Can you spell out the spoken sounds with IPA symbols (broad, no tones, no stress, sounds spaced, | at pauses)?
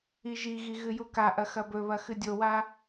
i ʒ i ɣ i ɣ ɨ j u k a ʔ ɐ x ɐ b ɵ β ɐ x ɨ dʲ o w a